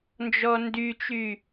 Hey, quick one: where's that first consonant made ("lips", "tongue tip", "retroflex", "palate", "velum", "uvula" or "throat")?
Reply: tongue tip